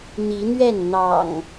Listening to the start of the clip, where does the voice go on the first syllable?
rising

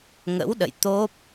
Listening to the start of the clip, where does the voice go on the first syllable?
rising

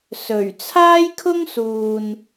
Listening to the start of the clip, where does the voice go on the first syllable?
low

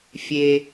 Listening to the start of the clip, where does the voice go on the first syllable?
low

